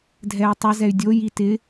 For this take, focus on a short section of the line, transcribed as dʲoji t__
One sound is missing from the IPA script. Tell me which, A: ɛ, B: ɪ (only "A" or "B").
B